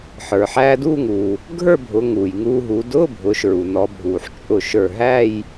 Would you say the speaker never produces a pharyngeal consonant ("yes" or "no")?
no